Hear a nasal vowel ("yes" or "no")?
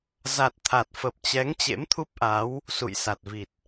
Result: no